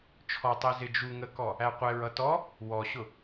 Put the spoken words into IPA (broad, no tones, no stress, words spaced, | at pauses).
t͡ʃʰɔtˤɛ zɪd͡ʒu ŋəkɔ | æqʷɛɹ ʌtɔ | wɔɕʊ